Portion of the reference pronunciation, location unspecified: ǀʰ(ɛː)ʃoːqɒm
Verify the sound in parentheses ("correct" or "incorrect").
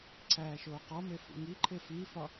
incorrect